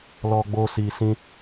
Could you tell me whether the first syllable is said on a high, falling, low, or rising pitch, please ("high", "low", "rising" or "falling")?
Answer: high